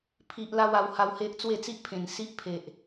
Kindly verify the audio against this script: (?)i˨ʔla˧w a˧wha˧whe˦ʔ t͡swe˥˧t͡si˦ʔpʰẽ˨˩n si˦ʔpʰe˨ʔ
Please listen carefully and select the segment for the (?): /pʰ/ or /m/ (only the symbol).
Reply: pʰ